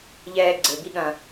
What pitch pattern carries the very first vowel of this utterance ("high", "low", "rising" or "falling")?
high